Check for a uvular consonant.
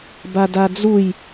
absent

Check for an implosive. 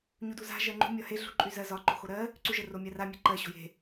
absent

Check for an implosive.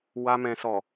absent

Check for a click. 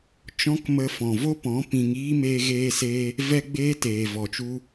absent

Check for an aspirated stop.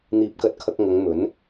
present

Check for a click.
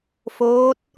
absent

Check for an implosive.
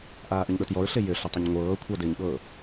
present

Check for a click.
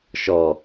absent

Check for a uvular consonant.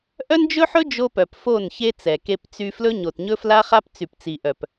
present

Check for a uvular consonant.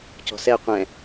present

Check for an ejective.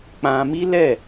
absent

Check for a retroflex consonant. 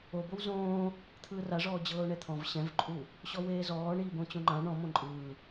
present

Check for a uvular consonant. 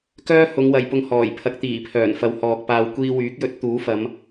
absent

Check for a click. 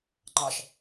present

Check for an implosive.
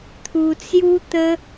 absent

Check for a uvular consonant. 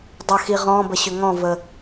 present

